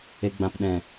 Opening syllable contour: low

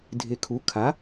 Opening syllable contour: low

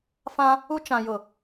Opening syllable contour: high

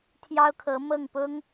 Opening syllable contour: high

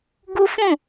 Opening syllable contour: high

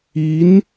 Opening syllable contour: rising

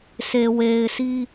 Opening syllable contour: low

